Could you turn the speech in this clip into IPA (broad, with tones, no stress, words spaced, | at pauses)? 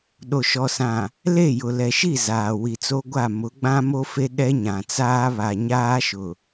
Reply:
ɗo˨ʃɔ˨sã˨ | le˦˨jʊ˨lɛ˨ʃi˦˨ zaː˨ wi˨t͡so˦ɡʷa˦˨ mʊ˨˦ɡ͡bã˦mo˦fe˦ ɗɛ˦ɲã˨t͡saː˦ βa˨ɲaː˦ʃʊ˨